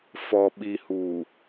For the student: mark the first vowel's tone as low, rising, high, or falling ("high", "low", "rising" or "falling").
low